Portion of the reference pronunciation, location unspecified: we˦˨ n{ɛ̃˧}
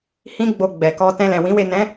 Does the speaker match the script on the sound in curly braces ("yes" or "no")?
no